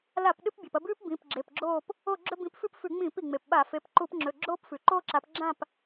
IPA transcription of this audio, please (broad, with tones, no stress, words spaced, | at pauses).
la˧˩˧p ɗɨ˦p bʲa˩pɐ˦˨bʉː˦p bĩ˩˧˩pɡ͡ǁe˩˧˩pɡ͡ǁoː˦˨p | o˦˨ɡ͡ǁɵ˦ bĩ˨˦pfʉ˦pfʉ˧˩˧ŋ͡mĩː˧˩˧p i˩ŋ͡me˩pɓa˧˩˧ fe˩˧˩pǃu˧˩˧pŋ͡ǁɵ˩˧˩ ɡ͡ǁoː˦pfʉ˩ǃoː˦ǁa˨˦p ɡ͡ǁã˦˨p